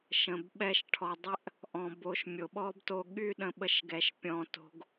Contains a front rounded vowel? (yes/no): yes